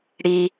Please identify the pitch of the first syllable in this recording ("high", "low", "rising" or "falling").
low